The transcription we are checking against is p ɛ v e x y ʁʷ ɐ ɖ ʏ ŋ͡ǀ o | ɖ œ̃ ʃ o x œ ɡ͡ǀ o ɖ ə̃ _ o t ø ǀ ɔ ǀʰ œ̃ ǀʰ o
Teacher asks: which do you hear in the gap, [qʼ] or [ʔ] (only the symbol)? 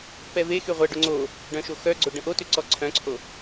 ʔ